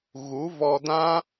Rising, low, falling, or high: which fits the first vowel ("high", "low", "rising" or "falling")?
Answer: rising